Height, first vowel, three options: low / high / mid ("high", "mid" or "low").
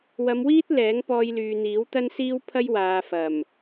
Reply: low